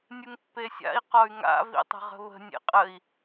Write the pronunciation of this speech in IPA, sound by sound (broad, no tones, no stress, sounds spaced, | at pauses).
nʲ ɯ ŋ pː e sʲ a̰ i̯ q ɔ y̯ ŋ a̰ v ḭ tˤ ə̤ ʁ ə̤ β ə̤ nʲ ḛ qʼ ə i̯